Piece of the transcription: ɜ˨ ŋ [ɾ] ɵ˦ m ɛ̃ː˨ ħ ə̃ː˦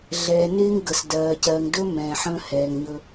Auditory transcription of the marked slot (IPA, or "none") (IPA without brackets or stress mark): d